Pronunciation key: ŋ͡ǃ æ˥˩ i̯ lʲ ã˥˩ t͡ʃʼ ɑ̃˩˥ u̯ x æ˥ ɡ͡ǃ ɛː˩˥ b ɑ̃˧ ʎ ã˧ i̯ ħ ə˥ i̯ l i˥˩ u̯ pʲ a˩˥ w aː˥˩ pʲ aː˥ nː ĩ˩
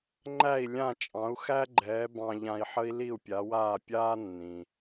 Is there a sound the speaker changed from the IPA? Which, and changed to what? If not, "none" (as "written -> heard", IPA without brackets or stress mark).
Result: none